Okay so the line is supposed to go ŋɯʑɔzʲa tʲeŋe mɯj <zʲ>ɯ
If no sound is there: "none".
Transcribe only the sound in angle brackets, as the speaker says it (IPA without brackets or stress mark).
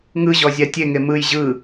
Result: ʑ